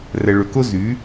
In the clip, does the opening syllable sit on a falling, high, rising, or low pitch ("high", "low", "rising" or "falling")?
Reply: low